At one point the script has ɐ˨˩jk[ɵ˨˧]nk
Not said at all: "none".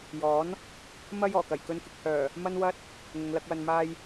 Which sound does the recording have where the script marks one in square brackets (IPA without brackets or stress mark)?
ɵ˧